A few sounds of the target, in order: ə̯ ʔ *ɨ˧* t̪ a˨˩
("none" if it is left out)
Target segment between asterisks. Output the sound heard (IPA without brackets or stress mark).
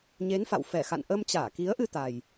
ɨ˧